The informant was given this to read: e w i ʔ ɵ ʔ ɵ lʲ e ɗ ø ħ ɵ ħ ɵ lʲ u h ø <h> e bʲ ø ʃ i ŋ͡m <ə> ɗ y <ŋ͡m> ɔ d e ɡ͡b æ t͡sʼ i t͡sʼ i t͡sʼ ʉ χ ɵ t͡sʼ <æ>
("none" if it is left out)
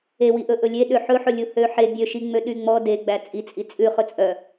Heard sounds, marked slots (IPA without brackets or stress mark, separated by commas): ħ, ø, ŋ͡m, œ